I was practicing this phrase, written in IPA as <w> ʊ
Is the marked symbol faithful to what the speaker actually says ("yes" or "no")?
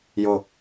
no